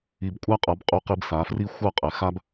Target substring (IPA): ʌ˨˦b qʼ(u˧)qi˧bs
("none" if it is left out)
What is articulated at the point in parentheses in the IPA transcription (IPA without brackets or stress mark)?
u˧